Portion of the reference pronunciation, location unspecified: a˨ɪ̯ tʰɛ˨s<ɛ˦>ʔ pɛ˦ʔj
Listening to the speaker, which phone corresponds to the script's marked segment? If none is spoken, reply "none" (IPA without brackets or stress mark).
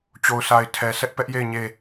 ɛ˦